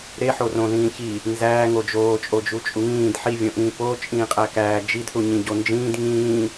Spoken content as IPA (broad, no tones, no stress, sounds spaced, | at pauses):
ɾ e ħ o r õ ð ĩː ç i | n z æː ŋ o d͡ʒ oː t͡ʃʼ o d͡ʒ u t͡ʃʼ u ŋ ĩː d ħ i vʲ õ ʔ ĩː p o t͡ʃʼ ĩː qʼ æ k æː d͡ʒ i d θ u ɲ ĩ ɟ o n d͡ʒ ĩː d ŋ ĩː